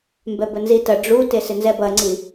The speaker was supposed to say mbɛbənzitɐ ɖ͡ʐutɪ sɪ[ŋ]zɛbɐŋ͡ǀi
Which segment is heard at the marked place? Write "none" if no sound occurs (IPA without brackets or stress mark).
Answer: n